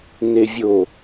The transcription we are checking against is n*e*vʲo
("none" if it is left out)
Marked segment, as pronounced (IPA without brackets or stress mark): e